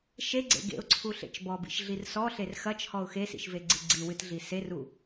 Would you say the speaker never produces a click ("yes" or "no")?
no